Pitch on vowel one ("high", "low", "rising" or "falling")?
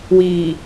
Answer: low